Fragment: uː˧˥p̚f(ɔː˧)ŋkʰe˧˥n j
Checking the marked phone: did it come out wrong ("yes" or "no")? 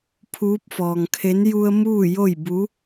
no